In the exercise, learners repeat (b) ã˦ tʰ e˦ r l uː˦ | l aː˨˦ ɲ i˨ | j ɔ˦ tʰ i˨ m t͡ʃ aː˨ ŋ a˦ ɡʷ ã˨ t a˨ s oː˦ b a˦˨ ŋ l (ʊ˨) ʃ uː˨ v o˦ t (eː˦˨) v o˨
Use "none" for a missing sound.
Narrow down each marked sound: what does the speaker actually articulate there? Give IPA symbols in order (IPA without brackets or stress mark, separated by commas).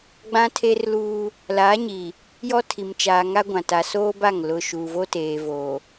ɡ͡b, ʊ˦, eː˨